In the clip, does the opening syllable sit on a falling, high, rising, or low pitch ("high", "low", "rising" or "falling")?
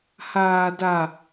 high